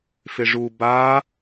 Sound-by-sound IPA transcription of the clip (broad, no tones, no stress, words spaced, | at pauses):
fɪʐu ba